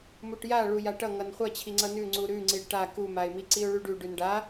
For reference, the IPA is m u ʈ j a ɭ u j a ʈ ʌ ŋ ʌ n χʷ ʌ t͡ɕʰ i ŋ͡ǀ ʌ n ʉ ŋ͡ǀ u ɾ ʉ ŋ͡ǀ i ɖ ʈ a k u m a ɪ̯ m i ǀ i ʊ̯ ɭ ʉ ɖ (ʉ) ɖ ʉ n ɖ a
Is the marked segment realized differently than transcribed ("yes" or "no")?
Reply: no